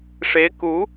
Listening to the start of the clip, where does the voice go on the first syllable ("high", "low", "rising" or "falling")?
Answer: rising